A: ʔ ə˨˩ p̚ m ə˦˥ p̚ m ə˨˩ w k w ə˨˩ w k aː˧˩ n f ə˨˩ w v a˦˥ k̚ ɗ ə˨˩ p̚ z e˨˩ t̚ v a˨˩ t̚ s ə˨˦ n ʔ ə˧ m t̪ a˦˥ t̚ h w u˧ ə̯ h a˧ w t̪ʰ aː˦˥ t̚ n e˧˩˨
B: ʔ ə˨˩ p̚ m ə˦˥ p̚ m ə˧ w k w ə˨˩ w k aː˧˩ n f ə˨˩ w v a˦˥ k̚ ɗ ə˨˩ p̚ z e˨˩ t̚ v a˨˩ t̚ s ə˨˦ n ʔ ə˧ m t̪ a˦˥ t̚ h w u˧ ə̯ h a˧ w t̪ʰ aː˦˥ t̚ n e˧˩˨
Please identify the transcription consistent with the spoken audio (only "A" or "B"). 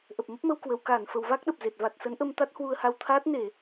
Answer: B